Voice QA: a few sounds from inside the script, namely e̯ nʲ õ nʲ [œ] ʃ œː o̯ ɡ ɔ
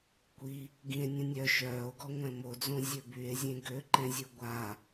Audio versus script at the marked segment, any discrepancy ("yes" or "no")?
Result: no